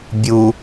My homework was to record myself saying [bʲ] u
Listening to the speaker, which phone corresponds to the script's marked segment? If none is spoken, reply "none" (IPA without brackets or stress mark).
bʲ